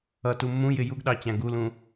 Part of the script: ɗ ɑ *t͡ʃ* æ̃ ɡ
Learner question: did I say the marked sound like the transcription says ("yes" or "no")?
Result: no